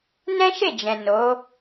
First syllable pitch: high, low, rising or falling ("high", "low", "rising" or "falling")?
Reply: high